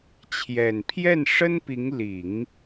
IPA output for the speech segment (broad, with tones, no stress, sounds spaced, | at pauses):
t͡ɕʰ j ɛ˨˩ n pʰ j ɛ˥˩ n ʂ ə˥ n p i˧˥ ŋ l i˨˩˦ ŋ